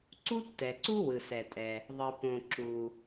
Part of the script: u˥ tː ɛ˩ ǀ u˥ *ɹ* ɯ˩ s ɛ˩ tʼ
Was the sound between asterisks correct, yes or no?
no